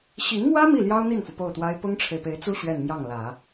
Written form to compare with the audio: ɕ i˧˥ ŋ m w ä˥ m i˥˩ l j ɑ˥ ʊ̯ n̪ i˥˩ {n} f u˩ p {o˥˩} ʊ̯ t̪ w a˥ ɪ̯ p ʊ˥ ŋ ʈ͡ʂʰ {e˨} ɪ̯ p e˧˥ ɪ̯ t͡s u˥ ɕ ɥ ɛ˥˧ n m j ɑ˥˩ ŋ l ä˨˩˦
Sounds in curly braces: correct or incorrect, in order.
correct, correct, correct

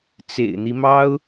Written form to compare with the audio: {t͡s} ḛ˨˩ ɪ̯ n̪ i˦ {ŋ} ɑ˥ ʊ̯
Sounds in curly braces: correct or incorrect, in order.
correct, incorrect: m

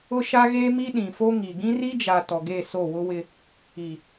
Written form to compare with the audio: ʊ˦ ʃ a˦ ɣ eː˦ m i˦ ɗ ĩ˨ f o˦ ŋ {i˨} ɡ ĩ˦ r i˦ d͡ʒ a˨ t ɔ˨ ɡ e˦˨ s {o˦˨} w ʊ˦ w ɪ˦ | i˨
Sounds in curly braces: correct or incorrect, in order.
correct, correct

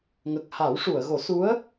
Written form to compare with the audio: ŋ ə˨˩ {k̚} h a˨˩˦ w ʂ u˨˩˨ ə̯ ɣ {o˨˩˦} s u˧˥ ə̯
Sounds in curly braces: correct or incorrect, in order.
correct, correct

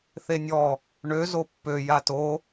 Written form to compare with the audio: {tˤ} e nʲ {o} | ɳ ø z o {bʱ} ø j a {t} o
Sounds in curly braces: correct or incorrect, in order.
incorrect: θ, incorrect: ɔ, incorrect: pː, correct

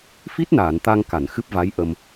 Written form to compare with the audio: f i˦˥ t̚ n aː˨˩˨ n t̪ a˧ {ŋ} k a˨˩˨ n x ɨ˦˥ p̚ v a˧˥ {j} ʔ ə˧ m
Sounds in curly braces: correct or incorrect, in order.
correct, correct

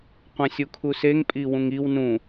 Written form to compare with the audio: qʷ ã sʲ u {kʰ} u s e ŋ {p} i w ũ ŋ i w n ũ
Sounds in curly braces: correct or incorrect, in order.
correct, incorrect: pʼ

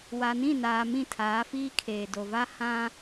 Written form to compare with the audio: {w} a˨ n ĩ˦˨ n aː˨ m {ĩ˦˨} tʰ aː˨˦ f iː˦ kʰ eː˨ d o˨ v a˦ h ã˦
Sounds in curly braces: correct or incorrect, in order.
correct, correct

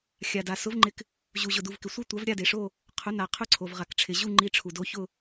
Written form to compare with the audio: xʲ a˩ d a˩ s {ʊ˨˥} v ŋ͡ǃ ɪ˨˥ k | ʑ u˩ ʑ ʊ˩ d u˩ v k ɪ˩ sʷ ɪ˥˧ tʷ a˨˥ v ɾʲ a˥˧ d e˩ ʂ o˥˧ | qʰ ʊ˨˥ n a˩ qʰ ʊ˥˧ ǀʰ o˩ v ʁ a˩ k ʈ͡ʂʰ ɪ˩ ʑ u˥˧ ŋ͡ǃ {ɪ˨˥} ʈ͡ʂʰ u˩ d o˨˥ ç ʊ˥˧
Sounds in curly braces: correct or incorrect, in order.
correct, incorrect: i˨˥

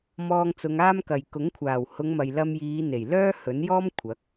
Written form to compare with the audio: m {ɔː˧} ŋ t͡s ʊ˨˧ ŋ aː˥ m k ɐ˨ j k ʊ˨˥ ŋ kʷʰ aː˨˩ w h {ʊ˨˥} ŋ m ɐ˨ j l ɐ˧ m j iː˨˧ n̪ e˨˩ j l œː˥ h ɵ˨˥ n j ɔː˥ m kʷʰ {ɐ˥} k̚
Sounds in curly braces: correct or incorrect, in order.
correct, incorrect: ʊ˨˧, incorrect: ɐ˨˥

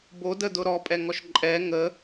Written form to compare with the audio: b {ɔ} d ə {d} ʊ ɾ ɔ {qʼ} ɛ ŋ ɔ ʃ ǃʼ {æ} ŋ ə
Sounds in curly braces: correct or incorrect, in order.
incorrect: o, correct, incorrect: pʼ, incorrect: ɛ

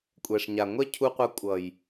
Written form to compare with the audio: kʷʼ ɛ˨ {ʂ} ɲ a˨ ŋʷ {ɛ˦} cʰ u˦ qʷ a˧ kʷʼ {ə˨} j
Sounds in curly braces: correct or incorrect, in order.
correct, correct, incorrect: ʌ˨

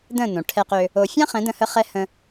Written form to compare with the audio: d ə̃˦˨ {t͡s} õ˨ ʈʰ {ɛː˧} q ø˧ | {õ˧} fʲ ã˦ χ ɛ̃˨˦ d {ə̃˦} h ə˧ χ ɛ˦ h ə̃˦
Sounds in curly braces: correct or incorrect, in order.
incorrect: n, incorrect: ɛ˧, incorrect: o˧, incorrect: ə̃˧

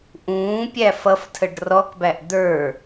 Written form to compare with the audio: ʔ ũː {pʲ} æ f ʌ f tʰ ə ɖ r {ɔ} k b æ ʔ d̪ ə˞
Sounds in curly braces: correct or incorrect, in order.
correct, correct

